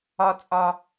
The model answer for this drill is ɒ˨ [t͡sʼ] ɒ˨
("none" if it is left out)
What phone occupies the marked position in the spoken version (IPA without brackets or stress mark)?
t͡sʼ